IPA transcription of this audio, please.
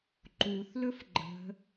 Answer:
ǃuθlɵf ɡ͡ǃə̤

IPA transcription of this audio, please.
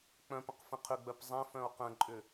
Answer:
k͡pœ̃pə̃q fə̃qʰʏɡ͡bœp zˤɛ̃fœ̃o̯ qə̃ǃʼʏ

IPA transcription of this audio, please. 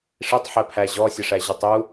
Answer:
ʂitˤħæpʰæ ʑɔsʲəʂæʑutˤ u

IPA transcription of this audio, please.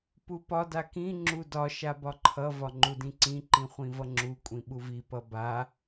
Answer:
pupɒ dakĩ ŋ͡ǁudɒ ʃabɒǃʰʌ vɒŋ͡ǃudĩǀĩ ǃĩχʷĩvʌŋ͡ǁu kʷʼĩɓuvi pʌba

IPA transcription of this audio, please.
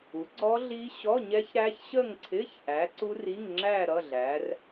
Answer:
u˨˥ɡ͡ǀɔ˦˥ɮi˦˥ ɕɔ˧˥˧ɲɛ˦˥ç ɾæ˦˥çɕə˥˧ŋǀʰɪ˧˥˧ç ʔæ˨˥ǀu˦˥ri˧˥˧ŋŋ͡ǁæ˥˧ ɾʌ˧˥˧ɮæ˨˥r

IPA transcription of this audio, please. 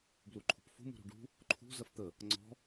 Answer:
bluǃʰṳpfṳ mṳɾṳɖṳ | ǃʰṳ zɐft̪ə | ŋ͡ǀɔ̤

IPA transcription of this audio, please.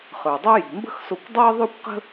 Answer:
χə˞˩dˤø˥ji̤˩ mbə̤˥xso˧kʷdˤəː˥ ðˤø˥kʷqə̤˥

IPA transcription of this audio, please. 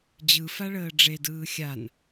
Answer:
d͡ʑɯfaɭəː ɖ͡ʐedɯː xʲan

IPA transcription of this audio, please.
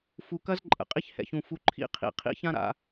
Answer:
fu˨kɐ˦z ǃʼə̰˨qʼi˦ç hɛ̰˨çũ˨ fu˨ ǃʰḭ˦qʰḭ˨ qʰḭ˦çã˦ ɾa̰˨

